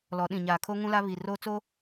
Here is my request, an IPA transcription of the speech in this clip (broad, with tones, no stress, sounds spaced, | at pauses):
l ɔ˨˦ ɗ ĩ˨ ɲ aː˨ kʰ o˦ ŋ ũ˦ l a˦ β i˨ r oː˦ t͡s o˦